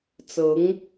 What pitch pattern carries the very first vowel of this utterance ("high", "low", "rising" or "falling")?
rising